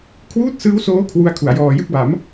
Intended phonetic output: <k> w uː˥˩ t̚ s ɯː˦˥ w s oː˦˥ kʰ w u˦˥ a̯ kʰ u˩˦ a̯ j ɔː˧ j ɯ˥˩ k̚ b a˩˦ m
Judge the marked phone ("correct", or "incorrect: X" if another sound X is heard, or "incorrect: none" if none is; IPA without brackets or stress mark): incorrect: kʰ